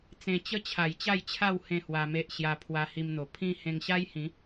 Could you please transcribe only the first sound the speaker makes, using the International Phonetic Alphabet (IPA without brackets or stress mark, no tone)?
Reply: t͡s